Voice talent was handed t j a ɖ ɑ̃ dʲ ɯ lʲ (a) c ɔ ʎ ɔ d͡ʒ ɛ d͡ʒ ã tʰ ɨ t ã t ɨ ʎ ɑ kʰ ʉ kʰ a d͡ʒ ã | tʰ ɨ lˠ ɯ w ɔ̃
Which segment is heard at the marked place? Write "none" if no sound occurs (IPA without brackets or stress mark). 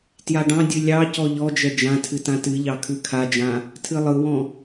ɑ